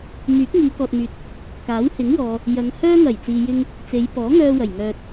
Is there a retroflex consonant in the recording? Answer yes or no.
no